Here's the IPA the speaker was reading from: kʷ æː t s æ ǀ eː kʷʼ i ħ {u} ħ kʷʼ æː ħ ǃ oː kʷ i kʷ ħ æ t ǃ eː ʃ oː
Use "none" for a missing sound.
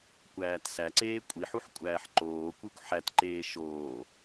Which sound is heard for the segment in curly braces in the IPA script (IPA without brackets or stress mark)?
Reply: u